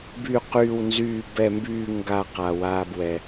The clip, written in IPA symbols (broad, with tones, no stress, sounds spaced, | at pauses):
b y˧˩ q yː˧˩ w n z yː˧˩ b ɛ˧˩ m b yː˧˩ ŋ ɡ a˧˩ q a˩ w aː˩ b w ɛ˩